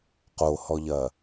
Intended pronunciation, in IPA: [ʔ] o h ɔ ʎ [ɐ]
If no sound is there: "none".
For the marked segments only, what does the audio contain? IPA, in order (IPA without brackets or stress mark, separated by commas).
q, ɐ